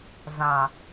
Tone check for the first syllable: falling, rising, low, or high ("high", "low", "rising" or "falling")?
low